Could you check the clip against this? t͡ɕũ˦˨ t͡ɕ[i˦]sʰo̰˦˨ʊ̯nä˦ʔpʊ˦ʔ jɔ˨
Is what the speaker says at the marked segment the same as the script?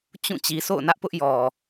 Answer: no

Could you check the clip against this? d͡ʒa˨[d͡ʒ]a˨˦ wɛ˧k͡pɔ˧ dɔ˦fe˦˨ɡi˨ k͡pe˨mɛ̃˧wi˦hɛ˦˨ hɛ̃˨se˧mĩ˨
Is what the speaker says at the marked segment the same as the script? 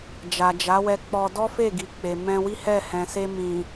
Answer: yes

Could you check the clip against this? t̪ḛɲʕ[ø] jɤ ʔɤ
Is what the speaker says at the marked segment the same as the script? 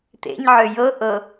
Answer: yes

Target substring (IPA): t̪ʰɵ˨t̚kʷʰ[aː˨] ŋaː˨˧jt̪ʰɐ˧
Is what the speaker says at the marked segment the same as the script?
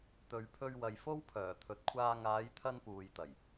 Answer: no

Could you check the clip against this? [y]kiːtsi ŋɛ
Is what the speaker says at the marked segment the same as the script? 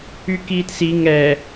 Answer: yes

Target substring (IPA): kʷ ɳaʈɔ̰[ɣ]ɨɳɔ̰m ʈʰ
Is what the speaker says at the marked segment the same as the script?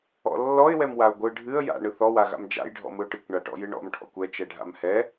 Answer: no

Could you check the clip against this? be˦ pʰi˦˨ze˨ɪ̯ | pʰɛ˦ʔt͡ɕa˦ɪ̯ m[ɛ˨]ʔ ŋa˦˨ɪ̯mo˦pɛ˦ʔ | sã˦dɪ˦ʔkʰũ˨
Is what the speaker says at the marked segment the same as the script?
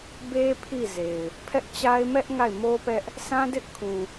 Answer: no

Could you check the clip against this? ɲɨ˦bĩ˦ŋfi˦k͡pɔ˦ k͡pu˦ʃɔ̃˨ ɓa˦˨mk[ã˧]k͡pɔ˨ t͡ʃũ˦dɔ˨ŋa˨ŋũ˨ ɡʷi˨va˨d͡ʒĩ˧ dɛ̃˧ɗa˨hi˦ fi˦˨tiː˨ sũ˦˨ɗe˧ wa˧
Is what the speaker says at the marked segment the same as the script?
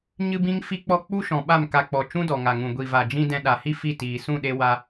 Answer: no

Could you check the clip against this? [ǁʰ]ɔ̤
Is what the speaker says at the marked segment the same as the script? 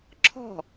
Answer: yes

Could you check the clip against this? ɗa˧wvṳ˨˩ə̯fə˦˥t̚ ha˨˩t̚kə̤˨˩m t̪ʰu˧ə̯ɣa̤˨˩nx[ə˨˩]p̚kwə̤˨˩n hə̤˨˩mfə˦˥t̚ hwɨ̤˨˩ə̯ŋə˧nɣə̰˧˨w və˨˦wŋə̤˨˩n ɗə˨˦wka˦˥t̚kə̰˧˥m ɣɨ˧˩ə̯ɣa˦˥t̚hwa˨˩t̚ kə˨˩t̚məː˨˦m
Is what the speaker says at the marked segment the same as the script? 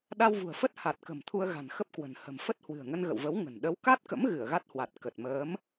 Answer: no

